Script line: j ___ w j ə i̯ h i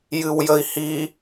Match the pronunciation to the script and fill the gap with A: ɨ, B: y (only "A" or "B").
A